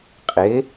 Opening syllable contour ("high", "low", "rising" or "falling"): rising